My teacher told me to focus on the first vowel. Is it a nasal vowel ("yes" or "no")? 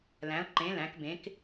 yes